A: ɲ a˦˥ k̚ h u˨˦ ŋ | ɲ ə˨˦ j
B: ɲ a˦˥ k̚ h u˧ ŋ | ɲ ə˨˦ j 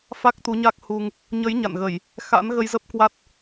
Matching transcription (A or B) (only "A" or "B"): B